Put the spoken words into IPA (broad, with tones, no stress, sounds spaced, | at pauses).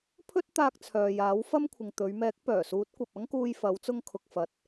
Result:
pʰ ɵ˥ t̚ t̪ aː˧ k̚ t͡sʰ œː˨ j aː˨˥ w f ɐ˥ m kʷʰ ɪ˨ ŋ t̪ ɵ˨˧ ɥ m ɛː˨˥ k̚ p œː˨˩ s uː˨˥ t̚ kʷ ɐ˨ p̚ ɐ˥ ŋ k uː˧ j f ɐ˨˧ w t͡s ʊ˧ ŋ kʰ ʊ˨ k̚ f ɐ˨ t̚